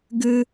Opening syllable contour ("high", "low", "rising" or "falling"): high